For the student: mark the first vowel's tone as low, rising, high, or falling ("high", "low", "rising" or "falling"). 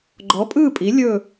rising